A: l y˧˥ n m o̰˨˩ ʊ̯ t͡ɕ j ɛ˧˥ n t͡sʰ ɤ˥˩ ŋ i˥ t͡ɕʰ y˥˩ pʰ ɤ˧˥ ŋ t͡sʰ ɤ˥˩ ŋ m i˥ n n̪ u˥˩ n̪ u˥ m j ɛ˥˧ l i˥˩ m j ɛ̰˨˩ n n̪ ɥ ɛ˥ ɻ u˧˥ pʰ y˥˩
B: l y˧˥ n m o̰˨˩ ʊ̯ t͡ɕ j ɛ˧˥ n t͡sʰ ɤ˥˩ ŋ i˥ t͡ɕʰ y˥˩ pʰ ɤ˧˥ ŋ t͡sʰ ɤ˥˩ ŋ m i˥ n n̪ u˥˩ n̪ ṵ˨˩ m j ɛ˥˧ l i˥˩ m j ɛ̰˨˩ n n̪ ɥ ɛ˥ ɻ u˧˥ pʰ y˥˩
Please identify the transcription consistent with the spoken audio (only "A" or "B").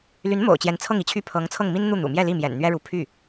B